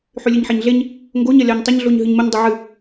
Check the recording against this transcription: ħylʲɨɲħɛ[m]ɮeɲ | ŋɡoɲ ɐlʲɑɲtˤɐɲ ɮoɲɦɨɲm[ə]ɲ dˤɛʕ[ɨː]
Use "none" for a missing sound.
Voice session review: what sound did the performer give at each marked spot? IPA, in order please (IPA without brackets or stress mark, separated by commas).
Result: ɲ, ə, ɨ